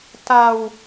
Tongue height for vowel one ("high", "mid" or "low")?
low